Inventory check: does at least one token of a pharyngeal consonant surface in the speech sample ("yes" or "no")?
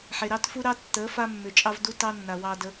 yes